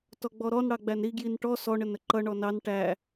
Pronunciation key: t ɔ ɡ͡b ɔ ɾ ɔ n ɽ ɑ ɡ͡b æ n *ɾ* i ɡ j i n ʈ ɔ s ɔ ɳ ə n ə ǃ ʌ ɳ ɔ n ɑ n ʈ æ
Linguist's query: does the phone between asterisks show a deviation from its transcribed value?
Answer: no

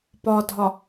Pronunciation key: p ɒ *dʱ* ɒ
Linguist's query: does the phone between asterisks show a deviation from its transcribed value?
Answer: no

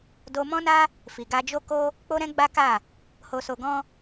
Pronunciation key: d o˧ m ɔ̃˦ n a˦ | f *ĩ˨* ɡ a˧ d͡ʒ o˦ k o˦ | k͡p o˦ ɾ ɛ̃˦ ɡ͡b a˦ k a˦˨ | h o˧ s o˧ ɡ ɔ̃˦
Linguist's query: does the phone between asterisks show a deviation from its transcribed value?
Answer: yes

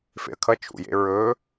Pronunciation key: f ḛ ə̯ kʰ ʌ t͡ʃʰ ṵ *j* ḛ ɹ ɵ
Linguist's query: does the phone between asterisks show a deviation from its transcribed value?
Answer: no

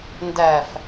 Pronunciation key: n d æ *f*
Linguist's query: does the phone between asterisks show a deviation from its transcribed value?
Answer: no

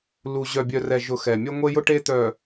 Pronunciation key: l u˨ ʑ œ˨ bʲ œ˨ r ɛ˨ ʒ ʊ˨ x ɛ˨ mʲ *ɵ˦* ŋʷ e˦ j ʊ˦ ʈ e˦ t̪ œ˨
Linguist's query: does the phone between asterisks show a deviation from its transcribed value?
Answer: yes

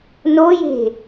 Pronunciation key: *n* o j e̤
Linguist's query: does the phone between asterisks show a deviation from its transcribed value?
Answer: no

